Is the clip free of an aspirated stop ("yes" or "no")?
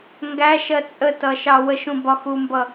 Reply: yes